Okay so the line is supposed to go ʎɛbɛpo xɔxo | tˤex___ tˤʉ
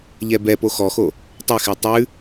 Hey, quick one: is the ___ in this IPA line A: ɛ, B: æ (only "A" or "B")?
A